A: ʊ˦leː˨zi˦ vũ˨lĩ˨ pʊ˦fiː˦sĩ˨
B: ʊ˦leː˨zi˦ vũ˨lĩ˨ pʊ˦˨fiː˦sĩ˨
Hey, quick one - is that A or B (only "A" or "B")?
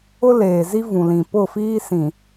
B